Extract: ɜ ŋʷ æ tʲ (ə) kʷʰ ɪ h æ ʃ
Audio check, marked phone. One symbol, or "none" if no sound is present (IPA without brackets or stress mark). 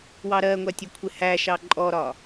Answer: ə